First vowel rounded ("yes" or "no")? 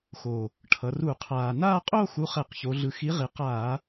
yes